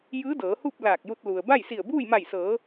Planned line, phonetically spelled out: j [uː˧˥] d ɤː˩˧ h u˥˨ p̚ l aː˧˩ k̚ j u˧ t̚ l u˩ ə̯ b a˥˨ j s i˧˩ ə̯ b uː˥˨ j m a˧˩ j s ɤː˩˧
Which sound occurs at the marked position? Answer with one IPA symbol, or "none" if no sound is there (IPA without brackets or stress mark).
ɯː˧˥